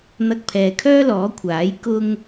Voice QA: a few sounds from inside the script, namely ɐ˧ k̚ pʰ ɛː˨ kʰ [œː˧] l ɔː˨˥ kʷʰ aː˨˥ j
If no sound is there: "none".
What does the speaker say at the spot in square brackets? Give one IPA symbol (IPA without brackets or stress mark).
œː˥